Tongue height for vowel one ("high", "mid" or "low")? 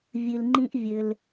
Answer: high